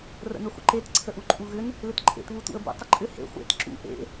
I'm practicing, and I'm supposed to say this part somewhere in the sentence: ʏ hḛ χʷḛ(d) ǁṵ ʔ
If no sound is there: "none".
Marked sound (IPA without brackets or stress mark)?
t